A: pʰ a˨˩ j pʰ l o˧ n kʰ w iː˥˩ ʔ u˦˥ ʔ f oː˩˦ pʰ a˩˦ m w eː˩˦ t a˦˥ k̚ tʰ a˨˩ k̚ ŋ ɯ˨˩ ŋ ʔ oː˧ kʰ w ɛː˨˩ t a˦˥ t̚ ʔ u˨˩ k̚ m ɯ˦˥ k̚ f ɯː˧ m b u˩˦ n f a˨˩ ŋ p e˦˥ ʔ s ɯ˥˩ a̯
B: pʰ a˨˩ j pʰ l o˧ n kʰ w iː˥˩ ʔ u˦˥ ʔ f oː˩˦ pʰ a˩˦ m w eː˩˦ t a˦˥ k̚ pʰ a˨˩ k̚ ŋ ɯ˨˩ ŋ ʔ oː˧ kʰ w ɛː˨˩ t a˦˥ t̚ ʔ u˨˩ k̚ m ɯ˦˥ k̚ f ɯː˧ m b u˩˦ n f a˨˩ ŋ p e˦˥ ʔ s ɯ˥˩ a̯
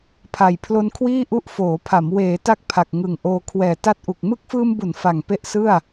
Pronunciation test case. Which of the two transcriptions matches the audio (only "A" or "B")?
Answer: B